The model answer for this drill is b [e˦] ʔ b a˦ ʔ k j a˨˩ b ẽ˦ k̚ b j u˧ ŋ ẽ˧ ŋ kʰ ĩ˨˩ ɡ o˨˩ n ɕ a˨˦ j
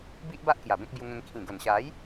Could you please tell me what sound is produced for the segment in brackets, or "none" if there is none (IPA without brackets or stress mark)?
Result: i˦